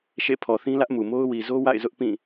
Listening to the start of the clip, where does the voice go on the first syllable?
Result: falling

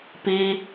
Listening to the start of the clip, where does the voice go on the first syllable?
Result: high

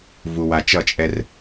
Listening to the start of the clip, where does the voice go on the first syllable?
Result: low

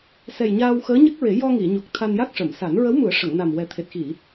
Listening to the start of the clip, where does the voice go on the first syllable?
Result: low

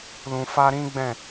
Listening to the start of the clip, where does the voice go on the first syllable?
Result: low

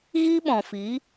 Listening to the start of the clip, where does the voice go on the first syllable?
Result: high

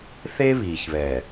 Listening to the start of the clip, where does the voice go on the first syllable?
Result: high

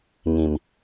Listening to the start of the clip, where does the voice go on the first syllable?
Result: low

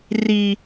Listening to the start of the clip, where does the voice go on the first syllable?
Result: low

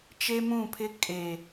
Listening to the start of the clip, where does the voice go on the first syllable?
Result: high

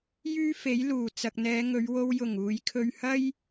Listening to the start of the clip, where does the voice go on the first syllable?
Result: high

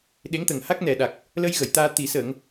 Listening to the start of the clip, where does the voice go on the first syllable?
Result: rising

